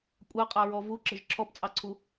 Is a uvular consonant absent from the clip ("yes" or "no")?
no